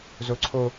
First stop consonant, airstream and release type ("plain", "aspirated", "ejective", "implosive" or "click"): click